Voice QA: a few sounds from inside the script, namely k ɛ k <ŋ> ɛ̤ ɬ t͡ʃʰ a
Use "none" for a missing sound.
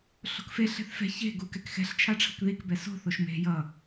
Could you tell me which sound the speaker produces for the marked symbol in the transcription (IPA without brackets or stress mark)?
x